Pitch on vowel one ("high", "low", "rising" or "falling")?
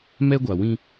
high